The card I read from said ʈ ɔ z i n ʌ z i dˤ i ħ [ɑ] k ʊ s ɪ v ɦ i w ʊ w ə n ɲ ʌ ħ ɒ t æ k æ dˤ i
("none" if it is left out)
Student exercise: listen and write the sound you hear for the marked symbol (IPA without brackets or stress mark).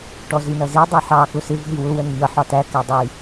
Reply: ɑ